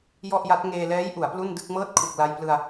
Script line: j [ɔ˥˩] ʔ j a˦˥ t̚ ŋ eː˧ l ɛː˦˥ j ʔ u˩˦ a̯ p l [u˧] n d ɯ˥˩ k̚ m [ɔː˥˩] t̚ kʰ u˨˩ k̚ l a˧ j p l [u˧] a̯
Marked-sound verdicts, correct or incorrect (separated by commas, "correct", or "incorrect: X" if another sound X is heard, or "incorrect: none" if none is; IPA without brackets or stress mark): correct, incorrect: u˥˩, incorrect: ɤː˥˩, incorrect: ɯ˧